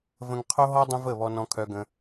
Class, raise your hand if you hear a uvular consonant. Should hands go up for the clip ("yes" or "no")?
yes